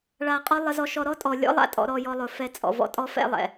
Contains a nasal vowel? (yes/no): no